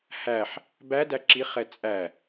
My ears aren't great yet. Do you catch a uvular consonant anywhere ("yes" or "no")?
yes